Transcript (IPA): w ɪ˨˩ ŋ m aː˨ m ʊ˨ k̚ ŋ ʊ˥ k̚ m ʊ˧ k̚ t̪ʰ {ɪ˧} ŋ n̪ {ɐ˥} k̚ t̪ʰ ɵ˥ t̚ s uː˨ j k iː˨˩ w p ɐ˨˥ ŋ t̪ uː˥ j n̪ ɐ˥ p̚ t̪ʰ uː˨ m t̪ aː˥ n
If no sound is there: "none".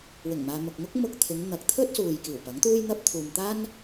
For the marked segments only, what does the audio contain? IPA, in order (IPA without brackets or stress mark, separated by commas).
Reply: ɪ˨˧, ɐ˨˥